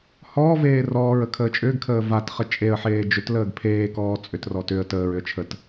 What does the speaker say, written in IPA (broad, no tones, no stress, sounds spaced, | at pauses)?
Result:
h ɔː v eː r ɔː ɹ ə kʰ əː t͡ʃʼ ʏː ɡ kʰ əː v a t χ ə t͡ʃʼ e ə̯ ħ eː d͡ʒ ʏ t l əː ɡ pʰ eː k ɔː t͡sʼ ʏ t r ɔ t ʏ ə̯ t əː ɹ ʏ ə̯ t͡ʃʰ ə t